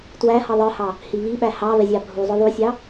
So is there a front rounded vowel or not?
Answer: no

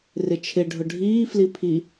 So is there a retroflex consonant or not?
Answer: yes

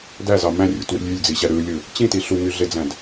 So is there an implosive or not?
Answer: no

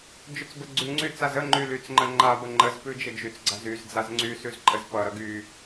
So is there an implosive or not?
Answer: no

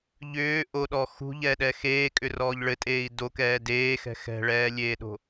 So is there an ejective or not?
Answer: yes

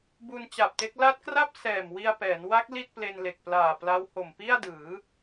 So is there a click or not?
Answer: no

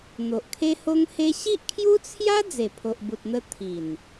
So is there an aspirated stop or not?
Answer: yes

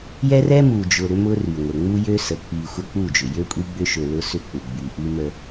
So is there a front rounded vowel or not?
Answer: yes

